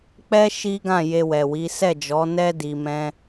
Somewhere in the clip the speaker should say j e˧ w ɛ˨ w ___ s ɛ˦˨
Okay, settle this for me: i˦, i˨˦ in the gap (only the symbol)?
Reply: i˨˦